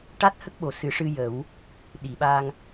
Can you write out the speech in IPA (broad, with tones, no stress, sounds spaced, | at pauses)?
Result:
ʈ a˦˥ t̚ h ə˦˥ k̚ ɓ o˨˩ s ɨ˨˩˦ ʂ ɨ˧ j ə˨˩˦ w | ɗ i˨˩˨ ɓ a˧ ŋ